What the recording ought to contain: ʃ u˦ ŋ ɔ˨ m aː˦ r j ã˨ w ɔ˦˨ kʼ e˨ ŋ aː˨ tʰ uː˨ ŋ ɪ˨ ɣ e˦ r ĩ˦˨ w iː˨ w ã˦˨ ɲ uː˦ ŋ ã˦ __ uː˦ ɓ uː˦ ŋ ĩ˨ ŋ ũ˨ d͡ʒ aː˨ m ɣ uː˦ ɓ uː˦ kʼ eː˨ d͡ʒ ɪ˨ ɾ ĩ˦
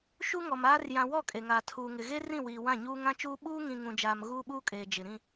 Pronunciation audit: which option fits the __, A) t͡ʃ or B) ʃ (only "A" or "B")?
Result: A